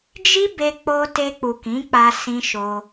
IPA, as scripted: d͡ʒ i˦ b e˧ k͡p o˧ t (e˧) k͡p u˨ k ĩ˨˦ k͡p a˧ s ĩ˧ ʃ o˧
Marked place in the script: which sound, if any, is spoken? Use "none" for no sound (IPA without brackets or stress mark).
e˧